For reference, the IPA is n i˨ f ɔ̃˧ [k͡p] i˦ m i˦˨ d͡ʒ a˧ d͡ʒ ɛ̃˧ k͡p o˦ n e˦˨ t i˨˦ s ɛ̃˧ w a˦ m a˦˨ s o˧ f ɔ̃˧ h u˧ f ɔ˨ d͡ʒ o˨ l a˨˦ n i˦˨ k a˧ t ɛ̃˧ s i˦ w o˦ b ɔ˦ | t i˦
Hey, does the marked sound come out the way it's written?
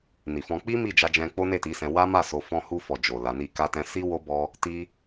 yes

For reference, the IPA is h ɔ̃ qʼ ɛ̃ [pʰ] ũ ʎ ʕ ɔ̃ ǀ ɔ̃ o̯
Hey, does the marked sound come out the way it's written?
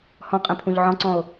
yes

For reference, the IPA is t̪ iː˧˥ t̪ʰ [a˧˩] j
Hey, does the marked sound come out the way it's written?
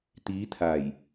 yes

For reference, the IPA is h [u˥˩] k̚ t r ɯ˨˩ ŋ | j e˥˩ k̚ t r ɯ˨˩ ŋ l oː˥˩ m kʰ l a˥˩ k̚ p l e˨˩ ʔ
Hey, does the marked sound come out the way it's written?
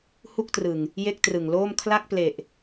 yes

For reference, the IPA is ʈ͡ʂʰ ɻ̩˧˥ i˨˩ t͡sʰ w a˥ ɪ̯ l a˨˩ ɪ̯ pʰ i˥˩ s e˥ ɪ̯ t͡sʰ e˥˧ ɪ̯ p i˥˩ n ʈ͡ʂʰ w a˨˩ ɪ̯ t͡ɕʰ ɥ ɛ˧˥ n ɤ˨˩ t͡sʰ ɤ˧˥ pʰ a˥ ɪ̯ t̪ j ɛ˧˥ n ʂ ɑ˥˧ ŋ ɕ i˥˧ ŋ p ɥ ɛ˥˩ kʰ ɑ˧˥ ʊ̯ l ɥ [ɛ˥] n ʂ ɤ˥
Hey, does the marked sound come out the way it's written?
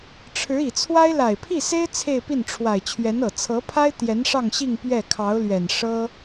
no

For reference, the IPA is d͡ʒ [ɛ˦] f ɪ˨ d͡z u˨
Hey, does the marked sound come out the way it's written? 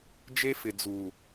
no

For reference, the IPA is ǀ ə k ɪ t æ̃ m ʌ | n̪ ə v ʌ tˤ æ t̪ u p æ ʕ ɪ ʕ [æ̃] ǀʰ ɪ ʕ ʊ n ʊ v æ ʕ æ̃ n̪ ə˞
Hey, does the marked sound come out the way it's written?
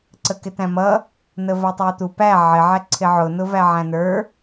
no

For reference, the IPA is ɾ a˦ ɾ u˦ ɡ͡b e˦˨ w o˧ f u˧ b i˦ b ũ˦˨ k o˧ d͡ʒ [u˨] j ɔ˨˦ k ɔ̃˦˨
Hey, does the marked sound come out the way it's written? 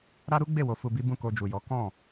yes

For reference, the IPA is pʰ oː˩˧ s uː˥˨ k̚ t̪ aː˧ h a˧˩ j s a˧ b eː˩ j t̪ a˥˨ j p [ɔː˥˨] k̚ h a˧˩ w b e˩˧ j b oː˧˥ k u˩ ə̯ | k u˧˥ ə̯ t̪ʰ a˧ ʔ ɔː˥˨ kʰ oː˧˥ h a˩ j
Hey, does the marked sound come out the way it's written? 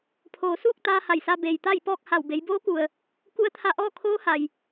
yes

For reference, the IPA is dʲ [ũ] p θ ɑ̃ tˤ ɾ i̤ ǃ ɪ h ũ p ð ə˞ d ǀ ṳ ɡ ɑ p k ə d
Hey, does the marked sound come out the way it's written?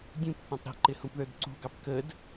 yes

